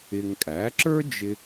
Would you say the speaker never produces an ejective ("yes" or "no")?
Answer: no